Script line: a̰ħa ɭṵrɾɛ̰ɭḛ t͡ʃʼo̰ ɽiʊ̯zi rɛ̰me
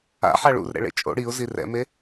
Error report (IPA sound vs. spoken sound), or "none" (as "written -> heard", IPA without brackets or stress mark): none